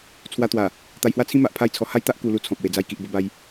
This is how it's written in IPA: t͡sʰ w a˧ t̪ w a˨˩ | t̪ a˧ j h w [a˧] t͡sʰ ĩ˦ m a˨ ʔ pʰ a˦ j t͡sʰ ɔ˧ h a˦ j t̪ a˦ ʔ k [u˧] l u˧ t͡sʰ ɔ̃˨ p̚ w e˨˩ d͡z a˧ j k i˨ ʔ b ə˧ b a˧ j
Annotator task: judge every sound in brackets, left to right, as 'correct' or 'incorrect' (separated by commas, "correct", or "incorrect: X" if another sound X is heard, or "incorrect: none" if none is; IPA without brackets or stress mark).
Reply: incorrect: a˦, correct